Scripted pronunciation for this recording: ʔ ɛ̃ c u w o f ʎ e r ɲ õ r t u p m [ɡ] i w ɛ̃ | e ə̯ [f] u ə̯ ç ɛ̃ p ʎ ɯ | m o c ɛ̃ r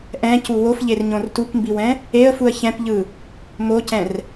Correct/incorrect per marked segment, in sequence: incorrect: b, correct

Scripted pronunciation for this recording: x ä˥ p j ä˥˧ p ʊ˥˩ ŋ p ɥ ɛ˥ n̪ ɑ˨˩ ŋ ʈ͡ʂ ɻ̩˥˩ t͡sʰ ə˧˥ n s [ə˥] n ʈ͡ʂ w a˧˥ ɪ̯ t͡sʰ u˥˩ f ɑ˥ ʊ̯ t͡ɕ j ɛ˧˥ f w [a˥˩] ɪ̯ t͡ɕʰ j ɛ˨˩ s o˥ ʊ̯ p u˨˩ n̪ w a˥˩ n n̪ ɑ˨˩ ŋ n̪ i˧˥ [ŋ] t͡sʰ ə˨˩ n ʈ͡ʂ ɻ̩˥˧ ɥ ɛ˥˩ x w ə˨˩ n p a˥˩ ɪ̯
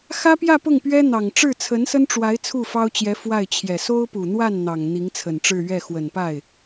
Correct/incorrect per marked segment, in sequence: correct, correct, correct

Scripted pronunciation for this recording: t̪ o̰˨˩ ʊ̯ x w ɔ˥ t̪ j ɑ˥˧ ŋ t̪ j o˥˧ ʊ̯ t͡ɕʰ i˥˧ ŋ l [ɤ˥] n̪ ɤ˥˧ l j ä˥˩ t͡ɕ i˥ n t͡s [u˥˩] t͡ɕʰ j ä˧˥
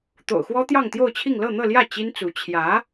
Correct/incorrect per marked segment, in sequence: incorrect: ɤ˥˧, incorrect: u˧˥

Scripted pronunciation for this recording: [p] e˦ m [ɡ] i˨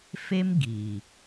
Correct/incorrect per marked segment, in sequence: incorrect: f, correct

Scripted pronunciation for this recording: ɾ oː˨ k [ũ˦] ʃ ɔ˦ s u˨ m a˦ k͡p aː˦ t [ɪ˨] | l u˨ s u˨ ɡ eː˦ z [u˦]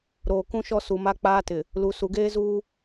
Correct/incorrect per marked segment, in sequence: correct, correct, incorrect: uː˦

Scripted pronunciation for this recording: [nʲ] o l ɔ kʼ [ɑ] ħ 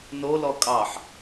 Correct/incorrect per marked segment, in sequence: incorrect: n, correct

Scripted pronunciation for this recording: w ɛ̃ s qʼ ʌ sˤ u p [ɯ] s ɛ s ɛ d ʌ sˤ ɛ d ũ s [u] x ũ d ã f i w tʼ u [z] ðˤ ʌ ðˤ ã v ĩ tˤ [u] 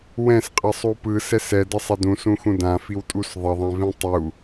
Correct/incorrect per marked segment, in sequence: correct, incorrect: ũ, incorrect: s, correct

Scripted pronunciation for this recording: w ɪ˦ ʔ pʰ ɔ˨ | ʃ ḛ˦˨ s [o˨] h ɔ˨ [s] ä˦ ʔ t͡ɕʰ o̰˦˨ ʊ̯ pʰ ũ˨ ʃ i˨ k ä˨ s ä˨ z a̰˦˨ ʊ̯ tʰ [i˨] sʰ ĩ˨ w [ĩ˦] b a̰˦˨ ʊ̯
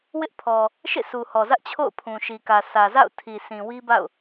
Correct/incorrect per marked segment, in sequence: incorrect: u˨, incorrect: z, correct, incorrect: i˦

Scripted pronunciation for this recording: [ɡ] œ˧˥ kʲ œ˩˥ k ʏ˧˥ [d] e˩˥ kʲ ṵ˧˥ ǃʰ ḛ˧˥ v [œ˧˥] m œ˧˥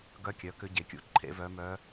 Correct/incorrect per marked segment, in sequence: correct, incorrect: ɟ, correct

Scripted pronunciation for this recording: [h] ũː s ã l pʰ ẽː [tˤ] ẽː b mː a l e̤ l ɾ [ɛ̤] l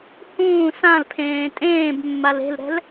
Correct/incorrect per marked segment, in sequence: correct, incorrect: tʼ, correct

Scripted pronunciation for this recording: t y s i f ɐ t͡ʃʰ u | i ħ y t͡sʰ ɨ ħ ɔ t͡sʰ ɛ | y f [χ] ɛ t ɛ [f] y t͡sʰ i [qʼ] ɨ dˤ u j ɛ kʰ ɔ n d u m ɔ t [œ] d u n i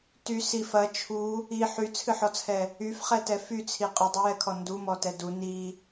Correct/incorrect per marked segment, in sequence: correct, correct, correct, incorrect: ɛ

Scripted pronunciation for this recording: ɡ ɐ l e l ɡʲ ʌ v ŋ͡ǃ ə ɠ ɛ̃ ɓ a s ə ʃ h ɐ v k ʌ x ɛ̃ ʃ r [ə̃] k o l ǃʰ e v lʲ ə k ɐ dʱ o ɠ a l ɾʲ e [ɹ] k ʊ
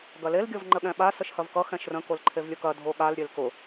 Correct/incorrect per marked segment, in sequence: correct, incorrect: l

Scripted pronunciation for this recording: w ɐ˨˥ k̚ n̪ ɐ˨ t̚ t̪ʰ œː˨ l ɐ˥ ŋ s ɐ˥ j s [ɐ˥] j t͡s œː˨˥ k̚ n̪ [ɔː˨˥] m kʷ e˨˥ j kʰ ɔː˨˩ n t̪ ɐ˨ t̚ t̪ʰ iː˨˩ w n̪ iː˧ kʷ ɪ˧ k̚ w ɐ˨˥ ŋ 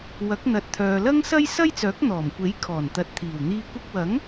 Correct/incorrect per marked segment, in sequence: correct, incorrect: ɔː˨˩

